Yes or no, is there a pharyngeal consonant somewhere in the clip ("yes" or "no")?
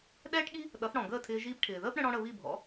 no